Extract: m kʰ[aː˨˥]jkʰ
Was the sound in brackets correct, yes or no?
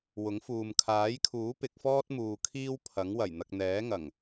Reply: yes